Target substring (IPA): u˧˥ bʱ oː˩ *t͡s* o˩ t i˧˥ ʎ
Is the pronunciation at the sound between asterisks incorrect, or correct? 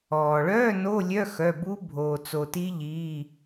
correct